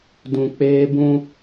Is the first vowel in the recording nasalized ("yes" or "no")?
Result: yes